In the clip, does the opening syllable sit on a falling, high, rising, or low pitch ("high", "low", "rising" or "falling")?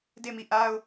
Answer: falling